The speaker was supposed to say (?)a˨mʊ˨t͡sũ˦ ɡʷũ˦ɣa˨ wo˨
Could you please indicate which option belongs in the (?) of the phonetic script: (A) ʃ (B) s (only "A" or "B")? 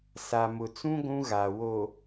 B